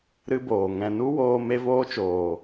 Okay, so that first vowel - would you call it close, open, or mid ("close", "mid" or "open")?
close